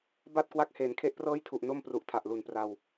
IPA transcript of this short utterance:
b a˥˩ t̚ k w a˦˥ k̚ h eː˩˦ n kʰ e˦˥ ʔ p r ɤː˥˩ j tʰ u˨˩ ʔ n o˥˩ m p r u˨˩ ʔ tʰ a˨˩ ʔ l u˨˩ n p r a˧ w

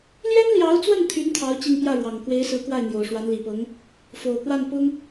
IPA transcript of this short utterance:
l j ɛ˥ n l j ɑ˧˥ ʊ̯ t͡s w ə˥˩ n t̪ʰ y˧˥ n t̪ʰ ɑ˧˥ ʊ̯ t͡ɕ i˥˧ ŋ p j ä˥˩ ɻ w ɑ˨˩ ŋ k w e˧˥ ɪ̯ s ɹ̩˧˥ k w a˥˩ ɪ̯ n̪ j o˨˩ ʊ̯ ʂ w a˧˥ n l i˨˩ p ɤ˧˥ ŋ | f o˨˩ ʊ̯ k w a˥˩ n p ʊ˥ ŋ

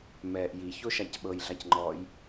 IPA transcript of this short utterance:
m ɛː ʔ j i ç o ʃ a c ɓ ɤ j ɮ a c ŋ͡ǃ ɔː j

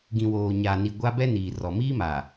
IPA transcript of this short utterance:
ɡ ĩ˨ w oː˨ ɲ a˨ n i˨ ɡʷ a˦ b ɛ˦ n iː˨ r ɔ˨ m iː˦ m a˨

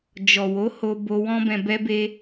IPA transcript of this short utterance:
d͡ʒ ɔ˨ w o˨˦ h o˧ b o˧ w ɔ̃˦ b ɛ̃˧ b ɛ˧ b e˧

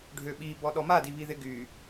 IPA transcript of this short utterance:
ɖʱ ø ɓ i b ɔ ɗ ɔ m a d i β i ð ɪ ɡ y

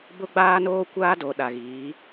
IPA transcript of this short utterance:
b ʊ˦ ɡ͡b aː˦ n oː˦ kʷ aː˦ d o˨ ɗ a˨ ɣ iː˨˦

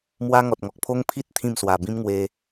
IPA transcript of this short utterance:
m w a˦ ŋ ɔ˨ t̚ ŋ ɔ˨ k̚ pʰ o˦ ŋ pʰ i˦ t̚ t̪ʰ ĩ˥˧ m s w a˨˩ b ĩ˦ m ŋ w e˧

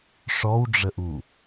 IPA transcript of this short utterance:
ʂ ɔ w ɖ͡ʐ ə ʔ u

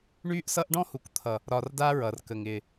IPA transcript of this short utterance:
ɳ yː˦ ʔ s ʌ˦ ʔ ɖ ɔ̃˦ h u˨ k t̪ʰ ʌ˨ | ɾ ɒ˧ r d a˦ ɹ ʌ˨ r k ə˨ ŋ ɪː˨

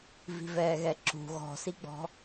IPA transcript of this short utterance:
v i̤ v ɛː ɣ ɛ ǁ ṳ ɣ ɔ̤ s i ɡ͡b ɔ̤

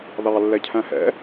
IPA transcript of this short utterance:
ð ɑ lː ɛ cʰ æ̃ h ɛ̰

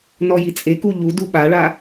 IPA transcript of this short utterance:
n ɔ j i t͡sʼ e k u ʎ u d u ɓ a ɭ a

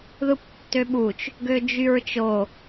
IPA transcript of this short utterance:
ð ɯ p tː ø ɓ u t͡ʃ | ɡ ø d͡ʒ y ɹ t͡ʃ o

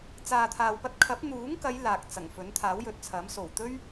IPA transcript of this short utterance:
t͡s aː˨ t̪ʰ aː˨ w p ɐ˧ t̚ kʰ ɐ˨˥ p̚ n̪ uː˨˥ ŋ k ɐ˨˧ j l aː˨ k̚ t͡s ɐ˨˩ ŋ f ɵ˨˥ n t̪ʰ aː˨˥ w j ɵ˨ t̚ t͡sʰ ɐ˨˥ m s o˨˩ w t̪ ɵ˥ ɥ

